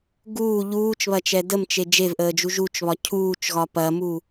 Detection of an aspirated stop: present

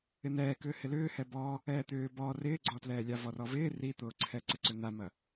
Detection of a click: present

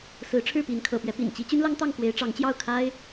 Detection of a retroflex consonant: present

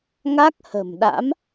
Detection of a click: absent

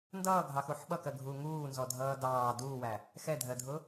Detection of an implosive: present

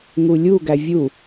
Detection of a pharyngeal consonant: absent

